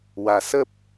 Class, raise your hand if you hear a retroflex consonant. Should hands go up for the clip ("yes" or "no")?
no